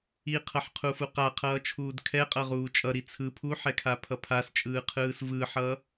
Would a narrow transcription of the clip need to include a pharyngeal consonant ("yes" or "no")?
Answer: yes